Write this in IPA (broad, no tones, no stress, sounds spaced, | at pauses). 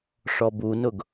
ʂ ɔ b u n ʊ ɡ